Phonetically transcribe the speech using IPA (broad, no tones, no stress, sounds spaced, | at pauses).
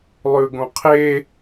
lˠ ʉ ɡ õ qʰ e